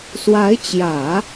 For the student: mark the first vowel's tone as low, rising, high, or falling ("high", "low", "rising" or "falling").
rising